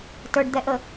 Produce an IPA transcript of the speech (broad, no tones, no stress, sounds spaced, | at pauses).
t ə˞ ɖ d̪ ɛ ʔ ə